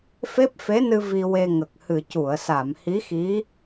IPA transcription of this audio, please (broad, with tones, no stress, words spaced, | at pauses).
fe˦˥p̚fe˧˥nɨ˧ vi˧we˧ŋə˨˩k̚ hɨ˨˩cu˨˩˨ə̯sa˨˩˨mhi˧˥ xi˧˥